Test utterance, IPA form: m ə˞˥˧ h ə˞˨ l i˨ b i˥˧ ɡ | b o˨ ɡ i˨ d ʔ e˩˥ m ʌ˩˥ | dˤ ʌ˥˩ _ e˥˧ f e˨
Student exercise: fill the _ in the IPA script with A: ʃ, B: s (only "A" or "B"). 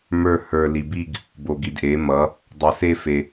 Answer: B